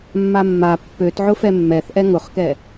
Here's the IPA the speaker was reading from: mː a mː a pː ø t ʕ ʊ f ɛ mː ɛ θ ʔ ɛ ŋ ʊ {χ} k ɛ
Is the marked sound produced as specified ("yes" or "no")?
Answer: yes